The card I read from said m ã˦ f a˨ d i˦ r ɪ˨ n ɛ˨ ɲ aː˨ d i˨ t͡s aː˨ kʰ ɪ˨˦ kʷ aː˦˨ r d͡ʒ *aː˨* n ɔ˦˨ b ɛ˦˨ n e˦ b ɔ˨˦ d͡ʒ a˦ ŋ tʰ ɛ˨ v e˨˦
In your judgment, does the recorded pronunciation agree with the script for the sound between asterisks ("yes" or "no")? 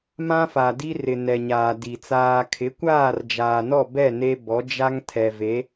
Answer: yes